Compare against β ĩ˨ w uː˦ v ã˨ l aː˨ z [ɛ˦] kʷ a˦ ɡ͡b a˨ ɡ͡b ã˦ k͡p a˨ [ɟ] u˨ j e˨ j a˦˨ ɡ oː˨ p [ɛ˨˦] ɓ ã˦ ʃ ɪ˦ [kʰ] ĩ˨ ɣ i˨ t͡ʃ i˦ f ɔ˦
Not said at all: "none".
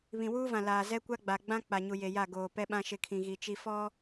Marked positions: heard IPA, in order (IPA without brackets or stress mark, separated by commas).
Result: ɛ˦, ɲ, ɛ˦, kʰ